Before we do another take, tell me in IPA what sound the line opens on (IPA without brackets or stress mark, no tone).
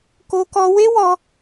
k